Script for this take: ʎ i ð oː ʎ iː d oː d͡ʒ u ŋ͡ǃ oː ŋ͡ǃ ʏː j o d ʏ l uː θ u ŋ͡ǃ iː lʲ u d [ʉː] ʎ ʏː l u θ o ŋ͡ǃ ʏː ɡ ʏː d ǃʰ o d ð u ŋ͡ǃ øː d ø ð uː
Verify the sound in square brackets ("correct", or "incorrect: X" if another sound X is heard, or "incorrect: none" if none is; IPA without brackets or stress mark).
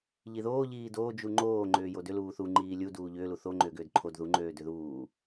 incorrect: uː